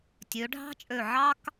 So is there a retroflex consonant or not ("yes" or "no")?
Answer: yes